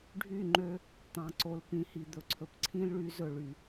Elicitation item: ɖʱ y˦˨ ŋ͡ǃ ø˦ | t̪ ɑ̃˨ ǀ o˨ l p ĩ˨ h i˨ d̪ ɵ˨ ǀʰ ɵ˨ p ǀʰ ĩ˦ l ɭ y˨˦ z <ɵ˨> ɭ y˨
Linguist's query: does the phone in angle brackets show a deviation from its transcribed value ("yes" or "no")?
no